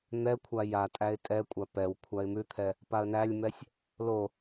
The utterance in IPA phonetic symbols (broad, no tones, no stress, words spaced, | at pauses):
n̪ɛkʷʰa jatʼæɪ̯ tʼɛkʷʼa pɛw kʷʰaɪ̯mʉt̪ʰɛ | paə̯nælʲmɛsʲ | lo